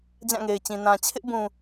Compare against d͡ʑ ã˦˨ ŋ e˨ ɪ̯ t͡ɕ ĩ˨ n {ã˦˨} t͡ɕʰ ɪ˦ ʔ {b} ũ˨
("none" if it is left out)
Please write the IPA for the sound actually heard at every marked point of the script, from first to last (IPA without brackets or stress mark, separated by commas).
ã˨, b